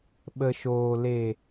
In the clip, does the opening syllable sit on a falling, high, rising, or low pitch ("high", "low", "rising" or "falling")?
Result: low